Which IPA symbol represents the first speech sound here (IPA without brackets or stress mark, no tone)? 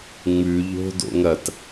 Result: ŋ͡m